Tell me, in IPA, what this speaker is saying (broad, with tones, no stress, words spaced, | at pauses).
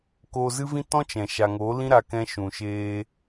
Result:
koː˧zɨ˦vĩ˦ tɔ̃˦t͡ʃɛ̃˨ ʃa˨ŋo˨˦ lĩ˦ɾa˧kɛ̃˧ ʃũ˨ʃeː˧